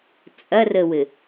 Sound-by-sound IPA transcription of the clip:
t͡sʼ ɐ r ə w ɘ

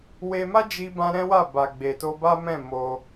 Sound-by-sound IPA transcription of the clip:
w e˧ m a˦ d͡ʒ i˧ b ã˧ ɾ ɛ̃˦ w a˦˨ b a˨ ɡ͡b e˨ t o˧ b a˦ m ɛ̃˦˨ m o˧

